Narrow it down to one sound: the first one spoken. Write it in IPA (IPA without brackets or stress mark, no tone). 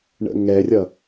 ɳ